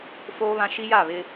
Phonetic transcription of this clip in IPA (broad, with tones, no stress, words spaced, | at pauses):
foː˦βã˦ ʃi˦ja˦˨βɪ˦